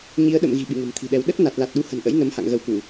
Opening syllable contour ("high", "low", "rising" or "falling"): rising